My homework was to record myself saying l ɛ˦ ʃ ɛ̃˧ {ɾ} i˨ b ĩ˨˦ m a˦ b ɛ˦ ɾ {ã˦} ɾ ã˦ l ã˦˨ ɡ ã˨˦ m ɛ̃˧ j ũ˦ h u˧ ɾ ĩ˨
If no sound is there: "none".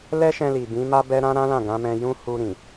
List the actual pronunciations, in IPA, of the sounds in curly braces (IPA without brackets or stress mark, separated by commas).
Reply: l, ã˦